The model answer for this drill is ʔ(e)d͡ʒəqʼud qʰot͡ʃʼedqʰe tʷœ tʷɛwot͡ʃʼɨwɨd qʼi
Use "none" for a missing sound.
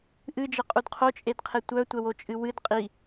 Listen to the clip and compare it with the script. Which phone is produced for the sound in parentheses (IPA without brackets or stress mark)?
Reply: ɨ